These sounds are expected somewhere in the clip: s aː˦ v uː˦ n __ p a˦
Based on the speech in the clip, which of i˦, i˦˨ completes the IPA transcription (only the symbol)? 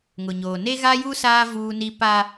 i˦